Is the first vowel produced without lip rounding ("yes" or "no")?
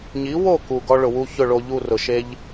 yes